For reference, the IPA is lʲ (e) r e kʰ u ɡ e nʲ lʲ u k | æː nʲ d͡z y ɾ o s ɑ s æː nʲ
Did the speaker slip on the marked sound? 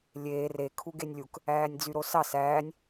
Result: yes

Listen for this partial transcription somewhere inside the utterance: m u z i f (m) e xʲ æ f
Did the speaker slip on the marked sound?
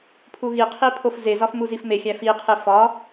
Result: no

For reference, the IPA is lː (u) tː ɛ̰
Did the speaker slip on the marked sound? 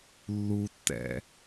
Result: no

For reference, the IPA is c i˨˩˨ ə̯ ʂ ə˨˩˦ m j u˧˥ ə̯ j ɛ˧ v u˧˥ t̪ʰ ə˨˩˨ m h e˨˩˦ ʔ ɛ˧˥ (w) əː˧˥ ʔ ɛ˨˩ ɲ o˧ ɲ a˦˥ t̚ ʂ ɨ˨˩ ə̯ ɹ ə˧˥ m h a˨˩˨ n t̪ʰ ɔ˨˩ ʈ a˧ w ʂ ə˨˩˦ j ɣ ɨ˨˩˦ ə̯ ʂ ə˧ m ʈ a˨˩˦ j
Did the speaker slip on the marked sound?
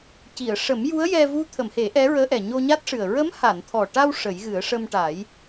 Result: yes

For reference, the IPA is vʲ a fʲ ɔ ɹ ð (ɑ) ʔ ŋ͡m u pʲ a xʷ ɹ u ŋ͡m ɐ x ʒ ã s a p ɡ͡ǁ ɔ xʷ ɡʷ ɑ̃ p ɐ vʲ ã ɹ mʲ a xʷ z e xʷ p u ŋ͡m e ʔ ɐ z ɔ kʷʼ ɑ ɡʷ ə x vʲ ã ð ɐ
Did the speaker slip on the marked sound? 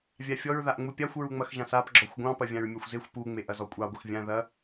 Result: yes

